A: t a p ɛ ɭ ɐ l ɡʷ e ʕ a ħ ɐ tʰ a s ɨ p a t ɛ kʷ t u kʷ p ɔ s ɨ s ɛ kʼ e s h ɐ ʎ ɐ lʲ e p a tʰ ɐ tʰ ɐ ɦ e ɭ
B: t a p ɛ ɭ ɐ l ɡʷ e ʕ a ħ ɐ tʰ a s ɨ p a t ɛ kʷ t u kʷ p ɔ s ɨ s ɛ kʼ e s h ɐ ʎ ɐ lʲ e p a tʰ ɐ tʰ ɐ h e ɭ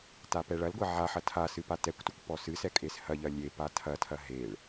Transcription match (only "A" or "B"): A